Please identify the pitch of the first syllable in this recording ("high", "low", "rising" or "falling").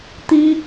high